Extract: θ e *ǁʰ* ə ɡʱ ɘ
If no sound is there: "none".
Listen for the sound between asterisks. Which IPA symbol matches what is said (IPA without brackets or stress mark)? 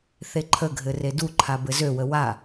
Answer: ǃʰ